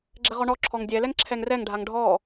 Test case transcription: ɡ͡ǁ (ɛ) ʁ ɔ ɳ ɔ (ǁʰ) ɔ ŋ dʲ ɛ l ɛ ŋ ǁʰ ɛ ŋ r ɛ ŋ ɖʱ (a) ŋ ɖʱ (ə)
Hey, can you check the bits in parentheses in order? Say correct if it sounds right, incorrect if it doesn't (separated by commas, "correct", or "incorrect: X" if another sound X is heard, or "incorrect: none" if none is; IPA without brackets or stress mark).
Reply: correct, correct, correct, incorrect: ɔ